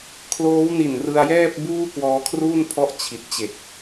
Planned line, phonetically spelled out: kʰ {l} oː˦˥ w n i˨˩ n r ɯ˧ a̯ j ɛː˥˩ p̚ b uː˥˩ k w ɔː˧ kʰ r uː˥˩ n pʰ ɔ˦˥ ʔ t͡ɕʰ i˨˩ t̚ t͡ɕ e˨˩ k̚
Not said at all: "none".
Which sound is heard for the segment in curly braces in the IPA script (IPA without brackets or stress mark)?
l